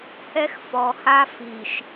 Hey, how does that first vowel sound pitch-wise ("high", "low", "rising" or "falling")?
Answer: high